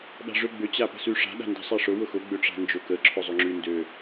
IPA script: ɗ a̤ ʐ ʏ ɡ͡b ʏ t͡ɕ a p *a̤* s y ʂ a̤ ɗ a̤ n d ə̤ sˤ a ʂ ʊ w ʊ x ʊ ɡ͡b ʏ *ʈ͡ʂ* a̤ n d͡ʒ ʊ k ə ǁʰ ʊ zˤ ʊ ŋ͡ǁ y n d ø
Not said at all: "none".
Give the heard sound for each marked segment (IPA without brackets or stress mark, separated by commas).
ə̤, ʈ͡ʂ